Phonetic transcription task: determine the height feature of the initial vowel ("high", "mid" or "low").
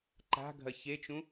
low